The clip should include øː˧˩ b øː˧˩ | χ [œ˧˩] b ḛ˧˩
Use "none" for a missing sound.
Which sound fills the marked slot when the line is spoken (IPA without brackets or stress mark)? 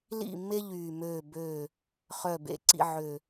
œ˧˩